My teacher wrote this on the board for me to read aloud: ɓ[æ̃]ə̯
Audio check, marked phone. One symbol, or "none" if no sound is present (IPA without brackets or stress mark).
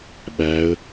æ